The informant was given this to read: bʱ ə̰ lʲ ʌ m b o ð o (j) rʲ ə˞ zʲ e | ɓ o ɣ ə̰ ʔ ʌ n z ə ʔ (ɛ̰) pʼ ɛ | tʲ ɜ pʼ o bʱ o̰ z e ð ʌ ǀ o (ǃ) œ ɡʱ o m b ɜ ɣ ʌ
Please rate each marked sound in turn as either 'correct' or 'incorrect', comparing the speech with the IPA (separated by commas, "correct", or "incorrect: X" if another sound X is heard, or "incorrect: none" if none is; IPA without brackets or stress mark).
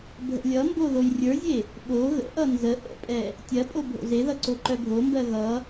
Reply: correct, incorrect: ə̰, correct